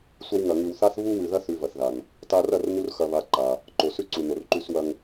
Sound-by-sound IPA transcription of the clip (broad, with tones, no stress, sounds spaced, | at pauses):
sʷ ɐ˧ w ŋ ɐ˨ ŋ ʉ˨ w θ a˦ θ β u˧ w ʉ˨ ð ɐ˧ θ ʉ˧ v ɐ˨ θ ð a˨ n | t a˧ r ɐ˦˨ r n u˧ r x ɐ˦ β a˦ ǃ a˧ | ǃ o˨ s ʉ˦ ǀ u˨ n o˨ r ǃ ʉ˦ s w ɐ˦ ŋ